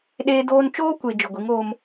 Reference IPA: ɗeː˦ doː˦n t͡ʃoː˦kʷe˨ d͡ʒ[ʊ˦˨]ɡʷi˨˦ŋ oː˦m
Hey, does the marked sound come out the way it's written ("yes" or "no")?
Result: no